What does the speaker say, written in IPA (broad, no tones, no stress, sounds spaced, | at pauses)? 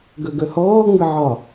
ɡ œ ɡ œ h ɔː ŋ͡m ɘ ʕ ɒ